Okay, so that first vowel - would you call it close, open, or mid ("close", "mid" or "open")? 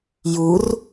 close